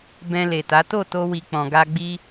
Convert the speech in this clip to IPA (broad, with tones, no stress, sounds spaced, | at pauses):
b ɛ̃˧ l e˨ t a˨˦ t o˦˨ t o˧ w i˨ k͡p ɔ̃˨ ɡ a˧ ɡ͡b i˧